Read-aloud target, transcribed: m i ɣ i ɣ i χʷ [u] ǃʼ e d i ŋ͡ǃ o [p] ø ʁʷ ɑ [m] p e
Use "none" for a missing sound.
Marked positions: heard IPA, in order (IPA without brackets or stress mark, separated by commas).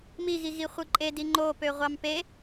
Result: ɯ, p, m